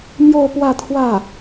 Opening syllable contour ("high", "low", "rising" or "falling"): falling